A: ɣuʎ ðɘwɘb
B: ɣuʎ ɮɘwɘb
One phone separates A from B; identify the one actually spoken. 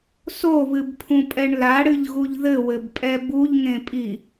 A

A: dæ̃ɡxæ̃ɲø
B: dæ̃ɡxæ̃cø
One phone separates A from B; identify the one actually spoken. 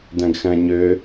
A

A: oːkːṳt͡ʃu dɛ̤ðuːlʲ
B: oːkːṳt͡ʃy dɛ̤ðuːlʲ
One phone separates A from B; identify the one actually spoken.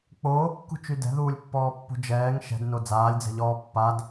B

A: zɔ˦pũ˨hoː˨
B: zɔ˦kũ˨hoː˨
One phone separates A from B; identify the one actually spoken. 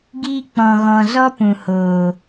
A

